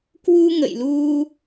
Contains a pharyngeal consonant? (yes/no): no